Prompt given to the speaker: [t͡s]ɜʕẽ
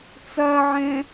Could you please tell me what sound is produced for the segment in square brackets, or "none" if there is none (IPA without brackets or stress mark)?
t͡s